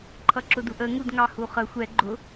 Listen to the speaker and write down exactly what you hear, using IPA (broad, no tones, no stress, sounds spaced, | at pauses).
ǃʰ ʌ ǁ ʊ d u ʔ ə ŋ u d ŋ ɑ h u χ ə xʷ ɛ ɡ͡ǃ ʊ